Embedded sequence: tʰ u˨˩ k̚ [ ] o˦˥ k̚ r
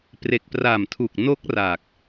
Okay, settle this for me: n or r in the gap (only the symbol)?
n